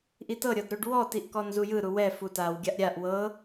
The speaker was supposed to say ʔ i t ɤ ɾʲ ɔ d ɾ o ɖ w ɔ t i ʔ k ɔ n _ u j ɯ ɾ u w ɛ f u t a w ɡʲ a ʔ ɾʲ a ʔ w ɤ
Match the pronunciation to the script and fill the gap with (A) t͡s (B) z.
B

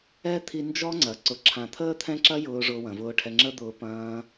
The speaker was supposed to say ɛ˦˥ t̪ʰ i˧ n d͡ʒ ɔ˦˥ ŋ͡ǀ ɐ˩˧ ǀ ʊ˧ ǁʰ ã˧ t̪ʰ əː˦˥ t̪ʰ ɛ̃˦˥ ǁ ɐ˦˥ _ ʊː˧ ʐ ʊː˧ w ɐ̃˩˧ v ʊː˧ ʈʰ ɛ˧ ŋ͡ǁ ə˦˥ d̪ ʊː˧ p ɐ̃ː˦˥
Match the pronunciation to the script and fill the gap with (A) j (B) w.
A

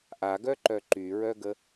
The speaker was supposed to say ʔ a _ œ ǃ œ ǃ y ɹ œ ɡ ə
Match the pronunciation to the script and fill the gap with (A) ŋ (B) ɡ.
B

